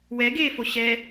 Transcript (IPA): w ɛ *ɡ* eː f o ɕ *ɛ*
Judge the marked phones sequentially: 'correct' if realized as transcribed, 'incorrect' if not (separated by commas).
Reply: correct, correct